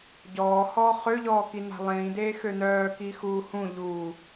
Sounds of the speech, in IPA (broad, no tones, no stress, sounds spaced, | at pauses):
ɟ ɔː h ɔː χ ø ʎ ɔː k i n a̤ lˠ ĩː d eː x ø n œː k i x uː h ũ ʎ uː